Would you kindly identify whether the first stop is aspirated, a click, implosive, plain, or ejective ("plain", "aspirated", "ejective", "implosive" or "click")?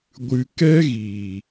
plain